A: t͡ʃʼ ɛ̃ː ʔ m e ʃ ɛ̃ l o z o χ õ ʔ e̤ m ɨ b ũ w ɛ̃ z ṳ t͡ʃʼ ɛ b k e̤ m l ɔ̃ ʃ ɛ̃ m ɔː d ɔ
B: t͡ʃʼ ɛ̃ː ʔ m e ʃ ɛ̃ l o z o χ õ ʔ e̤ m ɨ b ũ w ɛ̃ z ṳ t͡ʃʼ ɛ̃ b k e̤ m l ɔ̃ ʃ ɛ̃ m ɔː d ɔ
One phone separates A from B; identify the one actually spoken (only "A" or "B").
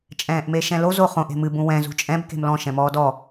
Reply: B